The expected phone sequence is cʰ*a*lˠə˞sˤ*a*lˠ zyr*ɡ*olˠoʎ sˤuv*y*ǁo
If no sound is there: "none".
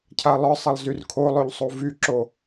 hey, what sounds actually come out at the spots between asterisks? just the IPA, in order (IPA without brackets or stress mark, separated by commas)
a, ɐ, kʰ, y